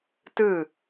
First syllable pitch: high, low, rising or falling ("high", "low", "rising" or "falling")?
falling